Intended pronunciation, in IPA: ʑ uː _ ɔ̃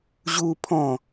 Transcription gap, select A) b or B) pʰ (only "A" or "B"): B